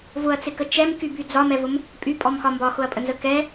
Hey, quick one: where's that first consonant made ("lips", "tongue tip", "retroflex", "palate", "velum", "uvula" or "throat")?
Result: lips